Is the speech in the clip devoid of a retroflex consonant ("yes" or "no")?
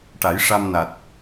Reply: no